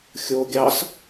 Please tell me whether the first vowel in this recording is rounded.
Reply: yes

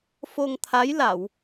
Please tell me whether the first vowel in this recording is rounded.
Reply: yes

